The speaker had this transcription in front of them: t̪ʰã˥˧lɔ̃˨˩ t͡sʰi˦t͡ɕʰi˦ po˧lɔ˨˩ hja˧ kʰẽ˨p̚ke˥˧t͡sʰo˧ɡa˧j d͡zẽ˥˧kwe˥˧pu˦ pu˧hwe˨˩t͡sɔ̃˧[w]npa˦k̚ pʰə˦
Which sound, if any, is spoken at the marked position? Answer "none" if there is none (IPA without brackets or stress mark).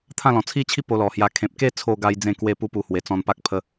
none